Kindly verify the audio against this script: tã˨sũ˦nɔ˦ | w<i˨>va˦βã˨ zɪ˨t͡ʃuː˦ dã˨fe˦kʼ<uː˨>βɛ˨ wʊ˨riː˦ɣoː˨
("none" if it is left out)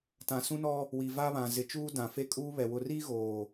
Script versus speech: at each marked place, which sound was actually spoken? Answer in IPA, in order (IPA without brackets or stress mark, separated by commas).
i˨, uː˦